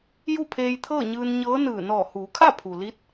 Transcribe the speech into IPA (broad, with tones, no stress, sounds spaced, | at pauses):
j u˥˨ pʰ eː˧ j t̪ʰ ɤː˥˨ ɲ ɯː˧ n ɲ ɤː˧˥ n ɯː˧˩ n ɔː˧˩ h uː˩˧ kʰ a˥˨ pʰ u˩ l i˧˥ t̚